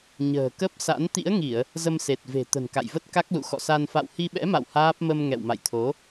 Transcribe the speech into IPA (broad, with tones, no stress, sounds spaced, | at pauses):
ɲ ə̤ː˨˩ k ə˦˥ p̚ s a̰˧˥ n t̪ ḭ˧˥ ə̯ ŋ i˧˩˨ ə̯ | z ə˧ m s e˨˩ t̚ v e̤˨˩ t̪ ə̤˨˩ n k a̰˧˨ j v ə˦˥ t̚ k a˦˥ k̚ l ṵ˧˨ x ɔ̰˧˨ s a˧ n f a̰˧˨ w h i˧ ɓ ɛ̰˧˥ m a̰˧˨ w h aː˦˥ p̚ m ə˧ m ŋ ɛ̰˧˨ w m a̰˧˨ j t̪ʰ o˨˦